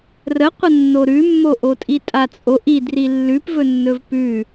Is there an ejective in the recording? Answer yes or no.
yes